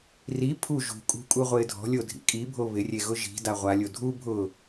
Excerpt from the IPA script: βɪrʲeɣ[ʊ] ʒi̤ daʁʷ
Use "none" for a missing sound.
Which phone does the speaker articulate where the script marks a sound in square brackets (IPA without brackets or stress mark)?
ʊ